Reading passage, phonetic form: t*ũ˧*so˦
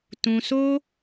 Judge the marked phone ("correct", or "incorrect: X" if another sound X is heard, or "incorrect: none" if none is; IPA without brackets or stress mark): correct